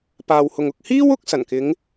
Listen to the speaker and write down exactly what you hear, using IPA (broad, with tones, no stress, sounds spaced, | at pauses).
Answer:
p aː˨ w h ʊ˨ ŋ ʊ˨ k̚ h iː˥ w ʊ˧ k̚ s ɐ˨˩ n k ɪ˨˧ ŋ